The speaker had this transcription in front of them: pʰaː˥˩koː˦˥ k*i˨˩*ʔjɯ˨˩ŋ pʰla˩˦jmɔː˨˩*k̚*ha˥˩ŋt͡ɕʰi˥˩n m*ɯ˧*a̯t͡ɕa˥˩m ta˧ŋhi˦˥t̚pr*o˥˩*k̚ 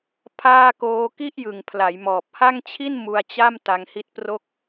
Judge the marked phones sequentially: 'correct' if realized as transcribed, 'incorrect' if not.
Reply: incorrect: i˥˩, incorrect: p̚, incorrect: u˧, correct

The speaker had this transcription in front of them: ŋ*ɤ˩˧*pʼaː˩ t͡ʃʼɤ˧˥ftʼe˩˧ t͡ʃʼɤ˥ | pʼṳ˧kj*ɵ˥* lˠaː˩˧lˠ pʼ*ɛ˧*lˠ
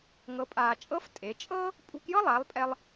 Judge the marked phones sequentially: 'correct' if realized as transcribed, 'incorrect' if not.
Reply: correct, incorrect: ɤ˥, correct

